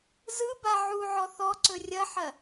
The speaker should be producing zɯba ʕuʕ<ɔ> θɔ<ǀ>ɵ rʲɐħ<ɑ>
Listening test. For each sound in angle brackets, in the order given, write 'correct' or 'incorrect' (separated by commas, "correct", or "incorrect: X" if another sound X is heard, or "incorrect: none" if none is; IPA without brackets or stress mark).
correct, correct, incorrect: ɐ